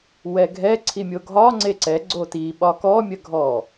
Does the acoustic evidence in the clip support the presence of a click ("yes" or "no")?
yes